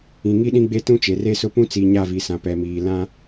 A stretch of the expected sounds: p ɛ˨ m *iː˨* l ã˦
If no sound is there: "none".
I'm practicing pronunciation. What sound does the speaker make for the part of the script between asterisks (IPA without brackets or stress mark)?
iː˨